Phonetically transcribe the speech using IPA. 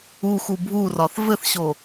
u x u bʱ u r ɒ θ v ɘ θ ɕ o

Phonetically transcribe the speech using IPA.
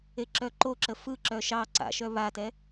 e ǁ œ ǃ o ǁ ə f ɯ ǁ œ ʃ ɑ ǀ a̰ ʃ œ β a t ɛ

